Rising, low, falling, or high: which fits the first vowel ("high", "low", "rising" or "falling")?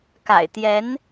low